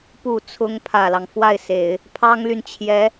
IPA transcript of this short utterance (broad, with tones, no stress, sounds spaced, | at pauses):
p u˨˩ t͡sʰ ʊ˧˥ ŋ pʰ ä˨˩ l ɑ˦ ŋ f w a˥˩ ɪ̯ s e˨˩˦ ɪ̯ | pʰ ɑ˥ ŋ l y˨ n t͡ɕʰ j ɛ˧˥